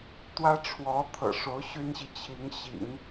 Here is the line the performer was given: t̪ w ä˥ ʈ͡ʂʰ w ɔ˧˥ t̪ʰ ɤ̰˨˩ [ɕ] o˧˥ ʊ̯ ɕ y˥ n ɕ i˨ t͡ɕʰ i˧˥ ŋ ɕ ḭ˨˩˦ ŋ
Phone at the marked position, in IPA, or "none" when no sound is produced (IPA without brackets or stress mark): ʂ